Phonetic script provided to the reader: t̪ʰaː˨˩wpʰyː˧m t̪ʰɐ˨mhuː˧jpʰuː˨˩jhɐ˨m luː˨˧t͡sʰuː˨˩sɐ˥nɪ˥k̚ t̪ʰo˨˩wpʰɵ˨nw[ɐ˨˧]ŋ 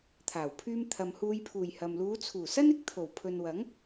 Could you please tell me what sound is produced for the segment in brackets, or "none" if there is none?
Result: ɐ˨˥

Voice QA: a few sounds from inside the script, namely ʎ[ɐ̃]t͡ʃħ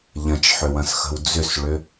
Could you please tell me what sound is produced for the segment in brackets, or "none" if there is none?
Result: ɐ̃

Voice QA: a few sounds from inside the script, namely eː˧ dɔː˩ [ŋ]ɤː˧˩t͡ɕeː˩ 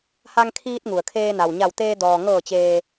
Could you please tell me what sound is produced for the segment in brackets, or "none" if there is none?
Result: ŋ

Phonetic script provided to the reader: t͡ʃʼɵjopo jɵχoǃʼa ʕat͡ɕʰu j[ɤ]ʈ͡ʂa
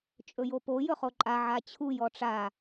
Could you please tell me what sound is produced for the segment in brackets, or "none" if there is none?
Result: ɔ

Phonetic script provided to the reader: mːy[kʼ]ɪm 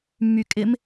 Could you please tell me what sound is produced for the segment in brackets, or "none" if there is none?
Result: kʼ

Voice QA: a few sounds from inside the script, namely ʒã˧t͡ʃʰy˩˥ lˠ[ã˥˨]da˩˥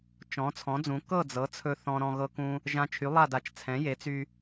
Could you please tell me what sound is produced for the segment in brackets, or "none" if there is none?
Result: a˥˨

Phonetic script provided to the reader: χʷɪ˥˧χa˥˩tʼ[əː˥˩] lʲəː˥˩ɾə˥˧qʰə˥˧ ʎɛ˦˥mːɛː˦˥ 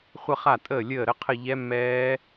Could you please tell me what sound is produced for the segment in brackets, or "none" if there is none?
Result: əː˥˩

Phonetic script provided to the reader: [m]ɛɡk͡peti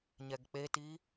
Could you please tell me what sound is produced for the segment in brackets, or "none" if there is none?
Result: ɲ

